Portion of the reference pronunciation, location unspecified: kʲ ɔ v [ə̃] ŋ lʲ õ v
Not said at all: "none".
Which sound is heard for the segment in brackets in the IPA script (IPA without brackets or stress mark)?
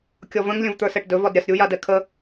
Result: ə̃